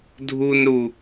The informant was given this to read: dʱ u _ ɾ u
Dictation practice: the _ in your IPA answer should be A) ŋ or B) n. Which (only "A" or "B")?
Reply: B